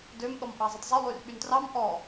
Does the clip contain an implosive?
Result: yes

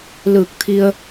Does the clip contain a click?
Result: no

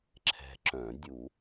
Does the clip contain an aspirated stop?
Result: yes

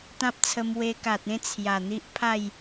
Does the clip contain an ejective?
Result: no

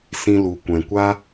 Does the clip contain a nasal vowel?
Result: yes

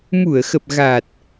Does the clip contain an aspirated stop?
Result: no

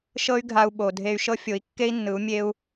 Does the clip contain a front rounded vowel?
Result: yes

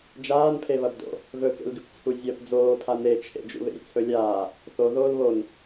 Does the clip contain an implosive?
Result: no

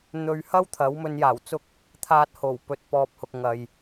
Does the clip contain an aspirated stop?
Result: yes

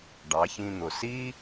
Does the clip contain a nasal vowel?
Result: yes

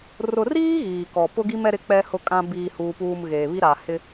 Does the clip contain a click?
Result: no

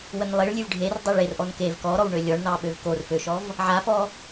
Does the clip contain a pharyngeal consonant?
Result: yes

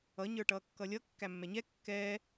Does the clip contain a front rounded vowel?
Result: no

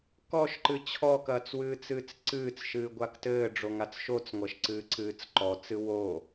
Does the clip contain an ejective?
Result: no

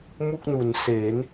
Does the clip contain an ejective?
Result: no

